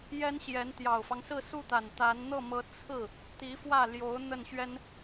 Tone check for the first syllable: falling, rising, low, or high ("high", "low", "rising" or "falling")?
high